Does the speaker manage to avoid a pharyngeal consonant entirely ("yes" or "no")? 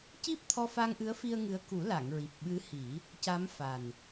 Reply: yes